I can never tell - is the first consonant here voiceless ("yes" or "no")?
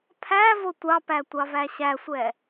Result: yes